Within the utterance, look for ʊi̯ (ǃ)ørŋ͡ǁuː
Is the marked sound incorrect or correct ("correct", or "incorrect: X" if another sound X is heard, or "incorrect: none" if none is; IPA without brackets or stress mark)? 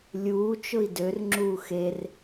incorrect: d